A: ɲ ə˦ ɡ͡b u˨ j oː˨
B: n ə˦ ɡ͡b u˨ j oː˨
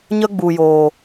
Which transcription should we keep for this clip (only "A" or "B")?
A